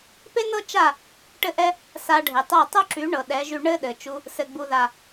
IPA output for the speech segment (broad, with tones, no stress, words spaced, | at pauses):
pe˦nɤ˦ t͡ʃa˦˨ | ʈɘ˧ʔɛ˧ | sa˧ɖʱe˨tˤɤ˦˨ tˤo˦ǁy˨˦ɳɤ˨ ɗɛ˨˦ʒy˧ ɳɘ˦ɗɘ˨ t͡ʃu˧ | sɘ˨ɡ͡bu˨ða˨